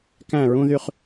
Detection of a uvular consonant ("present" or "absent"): present